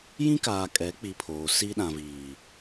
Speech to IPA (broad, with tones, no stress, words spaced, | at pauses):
jĩ˦ kaː˨kʼɛ˨˦k͡pi˨ pʰoː˨ si˦ɗã˨viː˨